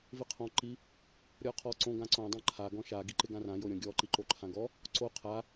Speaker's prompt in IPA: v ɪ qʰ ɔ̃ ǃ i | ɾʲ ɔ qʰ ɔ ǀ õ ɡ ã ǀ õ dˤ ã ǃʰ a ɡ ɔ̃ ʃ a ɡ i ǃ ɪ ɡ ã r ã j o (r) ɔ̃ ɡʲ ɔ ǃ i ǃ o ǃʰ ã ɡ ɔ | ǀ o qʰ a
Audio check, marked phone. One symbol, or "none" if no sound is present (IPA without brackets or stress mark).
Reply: ɾʲ